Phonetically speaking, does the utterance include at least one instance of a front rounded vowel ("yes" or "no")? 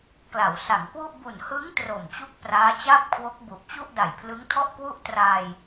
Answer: no